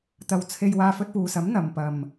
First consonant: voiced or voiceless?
voiceless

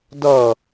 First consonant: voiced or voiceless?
voiced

